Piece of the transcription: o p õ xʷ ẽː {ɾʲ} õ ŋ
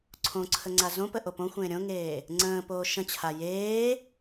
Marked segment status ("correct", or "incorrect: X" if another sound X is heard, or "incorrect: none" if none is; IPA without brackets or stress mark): correct